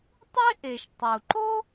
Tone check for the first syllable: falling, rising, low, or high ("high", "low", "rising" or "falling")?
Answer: high